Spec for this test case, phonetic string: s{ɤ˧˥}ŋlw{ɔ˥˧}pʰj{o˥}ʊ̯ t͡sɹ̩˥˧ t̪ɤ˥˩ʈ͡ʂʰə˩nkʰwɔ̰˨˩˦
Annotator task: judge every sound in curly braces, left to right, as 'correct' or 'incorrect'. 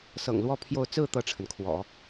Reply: incorrect: ɤ̰˨˩, correct, incorrect: o˥˧

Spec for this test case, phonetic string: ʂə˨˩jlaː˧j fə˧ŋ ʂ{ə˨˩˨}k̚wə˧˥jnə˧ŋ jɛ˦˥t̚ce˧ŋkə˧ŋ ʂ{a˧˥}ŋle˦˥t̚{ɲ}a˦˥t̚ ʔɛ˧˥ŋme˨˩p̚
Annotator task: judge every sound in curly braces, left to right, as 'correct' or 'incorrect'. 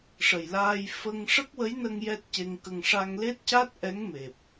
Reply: incorrect: ə˦˥, incorrect: a˧, incorrect: c

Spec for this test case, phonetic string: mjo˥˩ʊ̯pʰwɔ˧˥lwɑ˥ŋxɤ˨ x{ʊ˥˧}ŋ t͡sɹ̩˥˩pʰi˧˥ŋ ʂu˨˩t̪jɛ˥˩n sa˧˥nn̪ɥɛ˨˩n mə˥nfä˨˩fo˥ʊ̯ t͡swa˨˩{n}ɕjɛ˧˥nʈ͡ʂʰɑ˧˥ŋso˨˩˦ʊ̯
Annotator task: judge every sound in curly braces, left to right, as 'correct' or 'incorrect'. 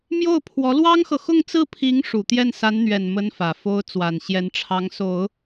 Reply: correct, correct

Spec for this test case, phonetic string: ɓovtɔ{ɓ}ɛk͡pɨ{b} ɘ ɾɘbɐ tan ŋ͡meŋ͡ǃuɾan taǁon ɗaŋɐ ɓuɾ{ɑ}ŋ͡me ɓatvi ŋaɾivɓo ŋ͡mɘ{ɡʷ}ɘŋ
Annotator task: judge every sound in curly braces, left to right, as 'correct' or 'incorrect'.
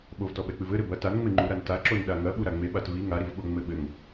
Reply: correct, incorrect: v, incorrect: a, incorrect: ɓ

